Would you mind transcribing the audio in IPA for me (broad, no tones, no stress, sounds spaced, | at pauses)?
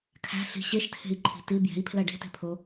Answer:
kʰ æ̤ ɬ i̤ ɕ e ʃ tʰ e̤ i̯ ǃʰ i̤ t i b j e̤ i̯ pʰ l æ ɖ e̤ t e̤ pʰ o